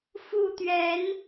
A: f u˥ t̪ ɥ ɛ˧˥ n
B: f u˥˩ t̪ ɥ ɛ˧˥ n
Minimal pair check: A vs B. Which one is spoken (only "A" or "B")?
B